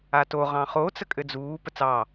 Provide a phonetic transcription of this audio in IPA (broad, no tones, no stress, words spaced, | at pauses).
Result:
ato ʁɑ̃χo t͡səkʼɘd͡zuː pət͡sɑ